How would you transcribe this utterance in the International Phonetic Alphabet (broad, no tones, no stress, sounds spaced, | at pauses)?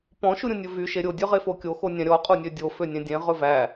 p ɔ̃ ʃ u ɾʲ ũ nʲ ɵ v y ʃ e ɾʲ o dʲ ø ʁ e f o kʲ o x o nʲ æ̃ ɾʲ ɔ qʼ u nʲ ø dʲ o f ø nʲ ẽ dʲ ẽ ʁ ɵ v æ